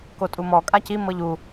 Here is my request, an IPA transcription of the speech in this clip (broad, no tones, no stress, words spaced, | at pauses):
kotʼumɔ kʼaci mɤʎu